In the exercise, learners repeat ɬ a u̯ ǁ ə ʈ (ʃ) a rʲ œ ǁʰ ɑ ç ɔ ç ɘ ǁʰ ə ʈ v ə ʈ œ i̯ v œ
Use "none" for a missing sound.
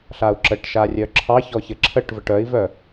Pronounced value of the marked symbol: ʃ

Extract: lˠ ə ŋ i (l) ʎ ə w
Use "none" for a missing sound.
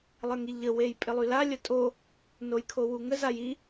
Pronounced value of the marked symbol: none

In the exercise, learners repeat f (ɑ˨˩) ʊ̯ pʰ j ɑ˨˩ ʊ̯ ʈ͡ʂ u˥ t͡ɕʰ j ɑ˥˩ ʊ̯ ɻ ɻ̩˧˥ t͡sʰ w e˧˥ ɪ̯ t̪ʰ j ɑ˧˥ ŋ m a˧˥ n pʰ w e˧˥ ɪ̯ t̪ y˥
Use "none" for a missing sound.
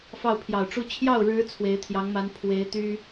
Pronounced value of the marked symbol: ɑ˥˩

